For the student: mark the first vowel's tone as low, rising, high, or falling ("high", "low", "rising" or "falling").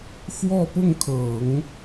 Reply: falling